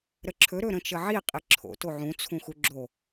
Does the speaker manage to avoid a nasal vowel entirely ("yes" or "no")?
no